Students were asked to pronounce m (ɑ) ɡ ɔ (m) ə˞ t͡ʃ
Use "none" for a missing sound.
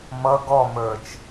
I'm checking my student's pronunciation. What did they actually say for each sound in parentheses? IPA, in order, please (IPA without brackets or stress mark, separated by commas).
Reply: ʌ, m